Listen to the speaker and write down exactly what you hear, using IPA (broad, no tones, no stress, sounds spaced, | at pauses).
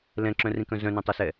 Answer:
l ɛ̃ ǁ œ̃ r ĩ k œ̃ z œ̃ n õ tˤ ɛ s ɛ